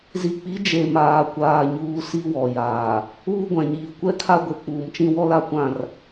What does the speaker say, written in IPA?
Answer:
z i˨ k͡p i˨˦ d͡ʒ e˨ m aː˨ kʷ aː˨ ɲ uː˨ s i˦ w ɔ˨ j aː˨ | uː˦ ɡʷ ã˨ ɲ iː˨ kʷ ɛ˦ kʰ a˦ ɡʷ e˨ k͡p uː˨ m t͡ʃ ĩ˦ w ɔ˦ l a˦ kʷ ã˦˨ r

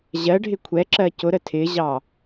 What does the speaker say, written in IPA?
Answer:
ʑ ɜ ɖʱ ɪ kʷʰ ɛ ǁ ɜ c ʊ ɾ ə tʰ ɪ ʑ ɑ

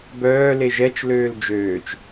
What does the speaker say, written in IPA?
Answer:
b œː l e ʒ ɛ t͡ʃ l øː l d͡ʒ øː t͡ʃ

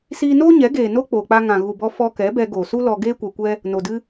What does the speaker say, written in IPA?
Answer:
s iː˧ n oː˦ ɲ ɛ˨˦ ɡ eː˨ n o˦ k͡p oː˨ k͡p a˧ ŋ ã˨ ɣ u˨ b ɔ˧ f ɔ˧ k ɛ˨˦ b ɛ˧ ɡ o˨ s u˦ l ɔ˧ ɡ eː˦ kʷ ɛ˧ kʷ ɛ˦ | n o˨ d ɨ˦

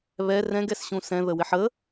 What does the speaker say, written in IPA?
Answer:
β ɛ r ɛ̃ ɡ ɛ s ɕ ũ s ɛ̃ ð ə w ɪ ħ ə

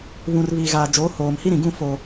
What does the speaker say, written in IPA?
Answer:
β ũ˨ r β iː˨ ɣ aː˨ d͡ʒ oː˨˦ h oː˨ m h i˦ ɾ ĩ˨ ɡ ũ˦˨ f o˨

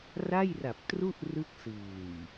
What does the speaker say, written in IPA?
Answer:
r a˥˩ j r a˨˩ p̚ t r u˥˩ ʔ r ɯ˦˥ k̚ s ɯː˨˩ j

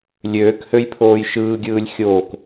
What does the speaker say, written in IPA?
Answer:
lʲ øː k h ø j pʰ oː j ʃ ɯː ɡʲ ɯː lʲ xʲ oː k

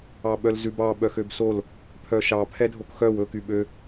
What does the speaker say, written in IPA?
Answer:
ɑ ɓ œ l z ʉ b ɑ ɓ œ x ø b s o l | pʰ œ ʃ ɑ pʰ ɛ dʱ o k x œ w ɵ k y ɓ ø

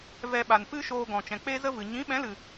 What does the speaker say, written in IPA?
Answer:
v ɛ˧ ɓ a˨ n p ɨ˦ ʃ oː˧ ɡ ɔ̃˨ t͡ʃ ɛ̃˨ k͡p e˦ z ə˦ v ɨ˨ ɲ ĩ˨˦ ɓ ɛ̃˨˦ l ɨ˨

